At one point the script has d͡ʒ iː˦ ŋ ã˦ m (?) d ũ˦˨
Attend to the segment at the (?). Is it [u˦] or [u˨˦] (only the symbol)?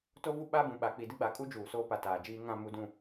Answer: u˨˦